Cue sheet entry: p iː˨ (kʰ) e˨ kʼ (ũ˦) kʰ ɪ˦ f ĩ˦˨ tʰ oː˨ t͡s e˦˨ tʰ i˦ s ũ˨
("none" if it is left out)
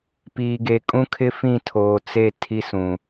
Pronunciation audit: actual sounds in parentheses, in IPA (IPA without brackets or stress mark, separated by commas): ɡ, ũ˦